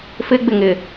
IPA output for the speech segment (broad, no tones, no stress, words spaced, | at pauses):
fɪɡ͡bɪŋɪ